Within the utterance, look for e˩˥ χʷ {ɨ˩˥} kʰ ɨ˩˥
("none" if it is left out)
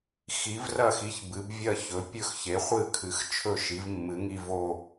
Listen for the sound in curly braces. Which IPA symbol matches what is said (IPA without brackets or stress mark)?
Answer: ɨ˥˨